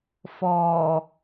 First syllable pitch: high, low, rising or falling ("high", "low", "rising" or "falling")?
low